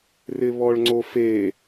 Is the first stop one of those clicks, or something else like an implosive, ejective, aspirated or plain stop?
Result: click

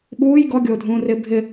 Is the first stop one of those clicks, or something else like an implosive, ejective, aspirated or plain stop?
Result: implosive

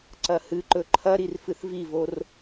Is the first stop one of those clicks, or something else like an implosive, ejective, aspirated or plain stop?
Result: click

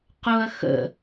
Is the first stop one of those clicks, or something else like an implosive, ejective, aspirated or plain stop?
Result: plain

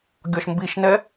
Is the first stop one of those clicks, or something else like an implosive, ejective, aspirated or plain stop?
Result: plain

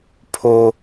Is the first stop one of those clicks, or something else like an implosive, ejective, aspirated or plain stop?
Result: aspirated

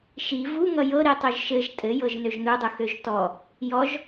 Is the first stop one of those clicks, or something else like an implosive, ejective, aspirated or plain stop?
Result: plain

